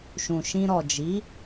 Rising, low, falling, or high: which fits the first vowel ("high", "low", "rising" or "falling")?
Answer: low